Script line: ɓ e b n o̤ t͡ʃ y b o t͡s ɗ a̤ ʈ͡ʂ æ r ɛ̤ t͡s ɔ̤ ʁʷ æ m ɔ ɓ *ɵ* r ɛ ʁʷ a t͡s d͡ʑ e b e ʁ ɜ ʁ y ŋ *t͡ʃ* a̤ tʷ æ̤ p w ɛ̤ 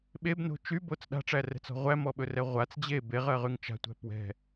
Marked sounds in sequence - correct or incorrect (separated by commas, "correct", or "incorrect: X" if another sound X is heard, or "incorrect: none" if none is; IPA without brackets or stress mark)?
correct, correct